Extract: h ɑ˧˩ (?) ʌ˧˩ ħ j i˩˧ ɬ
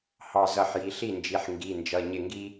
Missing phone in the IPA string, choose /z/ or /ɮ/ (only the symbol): z